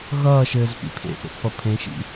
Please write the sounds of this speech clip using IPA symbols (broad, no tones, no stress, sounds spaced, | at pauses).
ɣ ʌː ʃ ɘː z p ḭ pʰ ḛ θ ḛ θ p ʌ pʰ ẽ ʃ ḭ